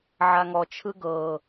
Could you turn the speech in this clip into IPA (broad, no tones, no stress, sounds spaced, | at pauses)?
ʕ a ŋ ɔ t͡ʃʰ ɯ ɡ ɤː